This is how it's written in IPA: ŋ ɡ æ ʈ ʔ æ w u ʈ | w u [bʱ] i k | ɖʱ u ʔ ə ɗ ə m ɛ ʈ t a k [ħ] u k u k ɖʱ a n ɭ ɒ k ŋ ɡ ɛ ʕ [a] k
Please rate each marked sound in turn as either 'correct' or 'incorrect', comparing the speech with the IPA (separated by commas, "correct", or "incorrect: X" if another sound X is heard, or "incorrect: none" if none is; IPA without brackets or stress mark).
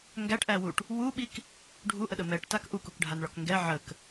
incorrect: ɓ, incorrect: ʔ, incorrect: ə